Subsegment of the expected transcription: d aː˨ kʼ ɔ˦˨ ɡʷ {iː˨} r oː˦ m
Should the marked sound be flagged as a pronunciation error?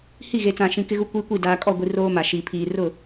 yes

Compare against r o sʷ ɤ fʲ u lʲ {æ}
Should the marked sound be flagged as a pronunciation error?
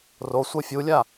yes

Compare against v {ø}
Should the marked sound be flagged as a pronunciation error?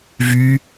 yes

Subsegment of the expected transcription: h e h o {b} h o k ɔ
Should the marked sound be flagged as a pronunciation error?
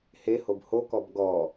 no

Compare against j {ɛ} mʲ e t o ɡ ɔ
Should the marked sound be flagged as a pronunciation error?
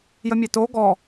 yes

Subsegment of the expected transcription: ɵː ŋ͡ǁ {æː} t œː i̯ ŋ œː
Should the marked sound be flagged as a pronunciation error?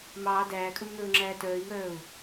no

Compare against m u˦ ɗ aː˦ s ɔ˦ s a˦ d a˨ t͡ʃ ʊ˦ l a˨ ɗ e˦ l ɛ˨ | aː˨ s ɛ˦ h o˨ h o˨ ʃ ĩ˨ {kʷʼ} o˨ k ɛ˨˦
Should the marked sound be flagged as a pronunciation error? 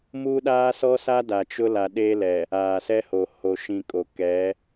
yes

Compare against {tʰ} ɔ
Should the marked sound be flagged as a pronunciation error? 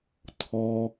no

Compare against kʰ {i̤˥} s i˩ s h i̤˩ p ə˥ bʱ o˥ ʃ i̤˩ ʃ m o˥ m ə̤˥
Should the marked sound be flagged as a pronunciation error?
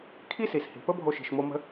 yes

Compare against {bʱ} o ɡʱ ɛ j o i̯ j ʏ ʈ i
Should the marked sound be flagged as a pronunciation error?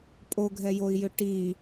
yes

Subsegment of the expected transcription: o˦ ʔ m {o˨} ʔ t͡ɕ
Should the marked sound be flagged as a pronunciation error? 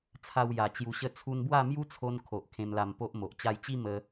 no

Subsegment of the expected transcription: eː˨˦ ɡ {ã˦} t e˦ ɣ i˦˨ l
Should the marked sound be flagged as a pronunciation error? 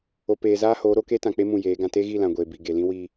no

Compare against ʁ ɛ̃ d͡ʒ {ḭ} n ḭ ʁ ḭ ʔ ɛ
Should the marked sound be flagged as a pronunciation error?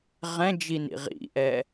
yes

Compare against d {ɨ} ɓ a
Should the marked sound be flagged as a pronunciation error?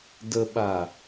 yes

